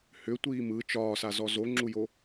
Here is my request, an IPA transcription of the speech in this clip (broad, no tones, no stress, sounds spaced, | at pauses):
h ʏ tʷ iː m ɯ t͡ʃ ɒː s a z ɔ z o ŋ͡ǁ u j o